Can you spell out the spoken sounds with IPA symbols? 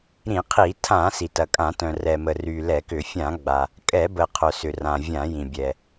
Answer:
ɾ ĩ˧˩˧ qʰ i˧˩˧ tʰ ã˧˩˧ s i˩ t ɐ˩ kʼ ã˧˩˧ t œ̃˩ r ɛ˩ m ə˩ r y˩ l ɛ˧˩˧ k ʏ˧˩˧ fʲ ã˧˩˧ ɡ͡b a˩ | kʼ ɛ˧˩˧ b ə˩ qʰ œ˩ s ʏ˩ r ã˩ vʲ ã˧˩˧ j ĩ˩ bʲ ɛ˩

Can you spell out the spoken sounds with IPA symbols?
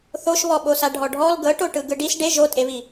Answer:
θ o ʃ β ɔ ɓ o s a ɖʱ ɔ ɖʱ ɔ l ɡ ɤ ʈ o ʈ ɯ ɡ ɯ ɖ i s ɖ e ʒ o tʼ e β i

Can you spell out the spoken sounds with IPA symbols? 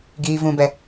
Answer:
ɡ iː˨ v ũ˨ b ɛ˨

